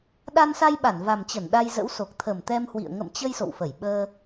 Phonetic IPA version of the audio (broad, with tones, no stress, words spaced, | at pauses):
ɗa˧nsa˧j ɓa˧˩nva˨˩mt͡ɕə˧˩n ɗa˧jzə̰˧˥wso˨˩k̚ t̪ʰə˨˩mt̪ɛ˧mhwḭ˧˨ə̯ ŋə̰˧˨mt͡ɕə˧j so̰˧˨wfə˧˩j ɓəː˧